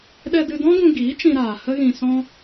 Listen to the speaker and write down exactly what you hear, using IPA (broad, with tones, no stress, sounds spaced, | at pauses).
ɗ ɛ˧ d ɨ˧ d ɔ̃˦ ɡ ũ˧ ɡ iː˨˦ t͡ʃ ĩ˧ ɾ aː˨ h ə˦ ɣ ĩ˧ s ɔ̃˦